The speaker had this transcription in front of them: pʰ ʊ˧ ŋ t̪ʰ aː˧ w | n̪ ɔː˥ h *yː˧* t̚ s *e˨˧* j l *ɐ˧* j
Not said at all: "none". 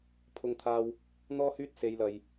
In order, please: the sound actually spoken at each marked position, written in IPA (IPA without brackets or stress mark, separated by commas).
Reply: yː˥, e˨˧, ɐ˨